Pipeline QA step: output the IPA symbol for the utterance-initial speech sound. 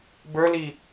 b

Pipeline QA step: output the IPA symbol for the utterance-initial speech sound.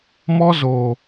m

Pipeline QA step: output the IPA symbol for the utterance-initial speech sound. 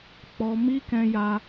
k͡p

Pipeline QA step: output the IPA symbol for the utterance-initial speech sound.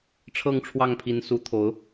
ʈ͡ʂʰ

